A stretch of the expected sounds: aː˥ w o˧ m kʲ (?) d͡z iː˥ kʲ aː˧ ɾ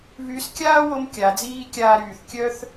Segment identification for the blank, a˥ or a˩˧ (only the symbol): a˩˧